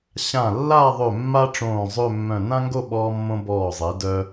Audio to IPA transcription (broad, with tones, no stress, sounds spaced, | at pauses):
ɕ ã˧˩ lː a˥˧ ðˤ ø˧˩ mː a˥ ʈ͡ʂ õː˧˩ zˤ ø˥˧ mː œ̃˧˩ n ã˥ ŋ ɡ o˥˧ ɓ ɔː˧ mː õ˧ b ɔː˧˩ zˤ e˩˧ d œ˧